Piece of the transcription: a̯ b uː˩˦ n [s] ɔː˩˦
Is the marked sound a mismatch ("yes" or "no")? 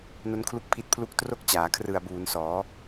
no